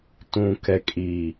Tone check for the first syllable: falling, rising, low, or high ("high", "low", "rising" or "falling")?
low